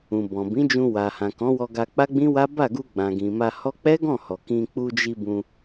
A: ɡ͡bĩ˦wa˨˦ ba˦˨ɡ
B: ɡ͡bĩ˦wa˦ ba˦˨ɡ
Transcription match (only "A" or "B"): B